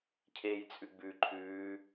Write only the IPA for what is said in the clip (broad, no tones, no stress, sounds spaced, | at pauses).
cʰ eː j t͡sʼ ʉ ɡ͡b ʉ ǃʰ ʉː